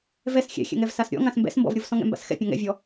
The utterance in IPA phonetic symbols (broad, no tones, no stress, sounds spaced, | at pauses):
v ɛ s xʲ ɛ̰ xʲ ɛ̰ ŋ ɛ v s a s ɾʲ ɔ̰ ŋ ã s m b ɛ̰ s m b ɔ̰ v ɾʲ o v s ɔ̃ ŋ ɛ̰ m b a̰ s x ɛ̰ pʲ ɔ̃ ŋ ɛ̰ vʲ ɔ